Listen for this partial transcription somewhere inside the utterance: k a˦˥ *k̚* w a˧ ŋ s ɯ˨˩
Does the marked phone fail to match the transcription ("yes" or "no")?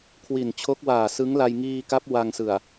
yes